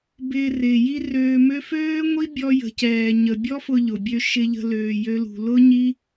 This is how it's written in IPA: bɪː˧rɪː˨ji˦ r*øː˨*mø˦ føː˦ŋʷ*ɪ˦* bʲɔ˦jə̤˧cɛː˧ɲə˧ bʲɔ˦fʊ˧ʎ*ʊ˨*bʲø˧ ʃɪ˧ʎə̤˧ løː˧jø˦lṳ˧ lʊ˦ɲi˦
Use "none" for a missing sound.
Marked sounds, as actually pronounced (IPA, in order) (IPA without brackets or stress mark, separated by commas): øː˧, i˦, ʊ˨